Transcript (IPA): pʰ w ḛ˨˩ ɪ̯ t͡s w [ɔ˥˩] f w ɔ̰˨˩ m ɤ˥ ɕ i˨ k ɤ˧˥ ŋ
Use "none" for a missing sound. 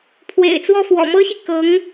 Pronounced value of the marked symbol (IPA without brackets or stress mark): ɔ˥˩